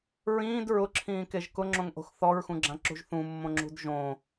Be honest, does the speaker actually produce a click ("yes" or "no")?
yes